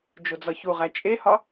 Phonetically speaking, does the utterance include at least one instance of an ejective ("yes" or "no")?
yes